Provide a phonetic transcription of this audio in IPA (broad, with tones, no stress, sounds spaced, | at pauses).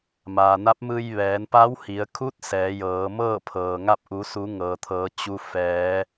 m aː˩ n a˧˥ p̚ m ɯː˧ j ʋ ɛː˩˧ n p a˧˥ w h i˩˧ ə̯ kʰ u˧˥ t̚ s ɛː˩˧ j ɤː˩˧ m ɤː˥˨ pʰ ɤː˩ ŋ a˥˨ p̚ ʔ u˩˧ s u˩˧ ŋ ɤː˩ t̪ʰ ɤː˩˧ t͡ɕ u˧ f ɛː˩˧